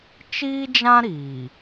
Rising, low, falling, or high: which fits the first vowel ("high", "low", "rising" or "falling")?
high